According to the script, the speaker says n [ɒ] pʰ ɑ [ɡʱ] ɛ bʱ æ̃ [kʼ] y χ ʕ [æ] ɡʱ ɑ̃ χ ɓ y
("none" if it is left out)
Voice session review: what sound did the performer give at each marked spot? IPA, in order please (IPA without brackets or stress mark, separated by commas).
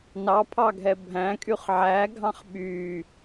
ɑ, ɡʱ, kʼ, æ